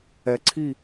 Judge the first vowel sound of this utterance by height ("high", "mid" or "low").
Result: mid